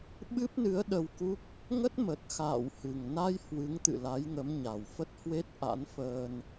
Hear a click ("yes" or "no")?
no